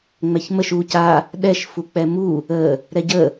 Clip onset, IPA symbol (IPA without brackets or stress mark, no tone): ŋ͡m